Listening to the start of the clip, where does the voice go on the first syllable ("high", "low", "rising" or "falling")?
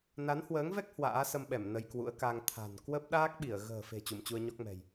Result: rising